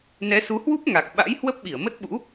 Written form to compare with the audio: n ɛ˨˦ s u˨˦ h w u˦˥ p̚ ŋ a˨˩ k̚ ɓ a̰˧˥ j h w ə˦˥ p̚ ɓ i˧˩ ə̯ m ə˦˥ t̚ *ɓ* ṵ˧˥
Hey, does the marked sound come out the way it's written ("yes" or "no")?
yes